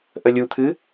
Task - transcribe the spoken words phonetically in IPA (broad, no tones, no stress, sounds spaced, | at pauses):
ʔ ə lʲ u t̪ʰ ɨ